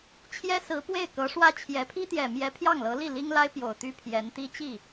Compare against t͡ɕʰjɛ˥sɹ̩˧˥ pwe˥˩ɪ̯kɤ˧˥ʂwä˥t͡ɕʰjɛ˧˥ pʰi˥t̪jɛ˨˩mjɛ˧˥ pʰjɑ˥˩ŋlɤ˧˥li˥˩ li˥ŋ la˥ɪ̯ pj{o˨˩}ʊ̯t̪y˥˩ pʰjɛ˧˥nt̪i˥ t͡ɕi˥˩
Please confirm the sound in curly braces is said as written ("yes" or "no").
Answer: yes